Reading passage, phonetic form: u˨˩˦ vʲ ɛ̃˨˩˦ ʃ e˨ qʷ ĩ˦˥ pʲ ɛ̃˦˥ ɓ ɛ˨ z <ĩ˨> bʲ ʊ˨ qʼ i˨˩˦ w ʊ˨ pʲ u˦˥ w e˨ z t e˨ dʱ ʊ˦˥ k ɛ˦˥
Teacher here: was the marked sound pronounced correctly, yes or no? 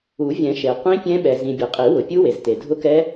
yes